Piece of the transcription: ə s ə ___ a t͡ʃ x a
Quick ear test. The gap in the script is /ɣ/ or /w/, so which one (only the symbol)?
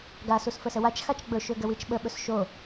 w